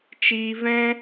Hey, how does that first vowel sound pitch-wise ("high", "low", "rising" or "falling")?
high